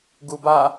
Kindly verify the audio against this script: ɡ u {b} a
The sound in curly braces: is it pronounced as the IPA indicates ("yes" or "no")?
yes